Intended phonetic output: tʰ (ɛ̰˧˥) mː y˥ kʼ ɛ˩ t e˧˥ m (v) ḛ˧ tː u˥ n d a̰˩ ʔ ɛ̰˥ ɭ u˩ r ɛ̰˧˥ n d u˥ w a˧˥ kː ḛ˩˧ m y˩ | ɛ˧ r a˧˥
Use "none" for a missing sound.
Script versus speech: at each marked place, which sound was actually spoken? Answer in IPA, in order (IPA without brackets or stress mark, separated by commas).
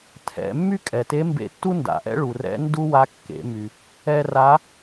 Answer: ɛ̰˩˧, b